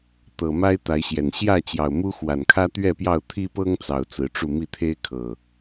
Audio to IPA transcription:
t̪ ɤ˨˩ m a˦ ɪ̯ t̪ a˨˦ ɪ̯ ɕ j ɛ˨˩ n ɕ j ä˥˨ t͡ɕ j ɑ˨˩ ʊ̯ m u˦ x w a˨˩ n kʰ ä˦ t̪ ɥ ɛ˥˨ p j ɑ˥˨ ʊ̯ t̪ʰ i˦ p ɤ˦ ŋ t͡s ɑ˨˩ ʊ̯ t͡s ɹ̩˨˦ ʈ͡ʂ u˥˨ m i˥˨ t̪ʰ e˦ ɪ̯ kʰ ɤ˨˩

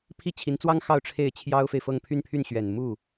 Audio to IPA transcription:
pʰ i˥˩ t͡ɕʰ i˧˥ n t͡s w ɑ˥ ŋ x ɑ˥˧ ʊ̯ ʈ͡ʂʰ e˥˩ ɪ̯ t͡ɕʰ j ɑ˥ ʊ̯ f e˨ ɪ̯ f ɤ˥˧ ŋ pʰ y˥˧ n pʰ y˥˩ n ɕ ɥ ɛ˨˩ n m u˥˩

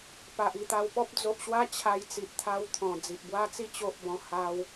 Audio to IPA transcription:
p a˨ ʔ i˥˧ t̪ a˧ w p ɔ˦ p̚ d͡z o˨ ʔ ɕ w a˦ t͡ɕʰ a˧ j t͡s i˨ ʔ t̪ʰ a˧ w t̪ʰ ɔ̃˨˩ d͡z i˨ ʔ b w a˦ t͡s i˥˧ t͡ɕ o˦ ʔ b ɔ̃˧ h a˧ w

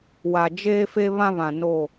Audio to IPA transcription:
w a˨ d͡ʒ eː˦ f e˦ β ã˦ β ã˨ n o˦˨

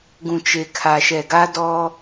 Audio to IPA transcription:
ɡ ũ˨ t͡ʃ e˨ kʰ a˨ ʃ ɛ˨ ɡ a˦ d ɔ˦

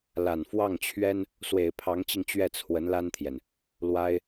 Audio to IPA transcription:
l a˨˩ n f w ɑ˥˩ ŋ t͡ɕʰ ɥ ɛ˥ n | s w e˨˩ ɪ̯ pʰ ɑ˧˥ ŋ t͡ɕ i˧ ŋ t͡ɕ ɥ ɛ˥˩ t͡sʰ w ə˧˥ n l a˥ n t̪ʰ j ɛ˨ n | l w a˥ ɪ̯

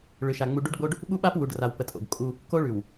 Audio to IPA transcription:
ɭ ʏ˨ ʃ a˨ ŋ͡m u˨ ɖ u˦ ɖ ɡ͡b o˦ ɖ | ɓ u˦ ɓ a˦ p w u˨ ɖ r a˨ w p ə˨ tʼ o̰˨ ɡ kʼ u˦ | k o˦ ɭ ʉ˨ w

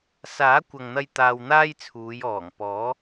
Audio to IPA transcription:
s aː˨˥ kʷ ɐ˨ ŋ n̪ ɐ˧ j t̪ aː˧ w n̪ aː˥ j t͡sʰ uː˨˧ j ɔː˨˩ ŋ p ɔː˨˥

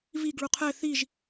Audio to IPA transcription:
v i ɡ ɭ u qʰ ɛ θ i ʒ

